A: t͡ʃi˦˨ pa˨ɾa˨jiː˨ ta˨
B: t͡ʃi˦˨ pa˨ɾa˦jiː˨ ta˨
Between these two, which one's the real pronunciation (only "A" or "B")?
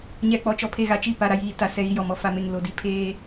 A